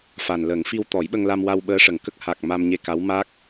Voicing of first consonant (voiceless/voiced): voiceless